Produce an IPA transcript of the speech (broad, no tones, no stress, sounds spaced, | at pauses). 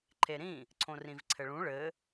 ǃʰ e ɾ ĩ | ǀʰ õ r ĩ v ǀʰ ɘ ɭ ũ ɭ ɘ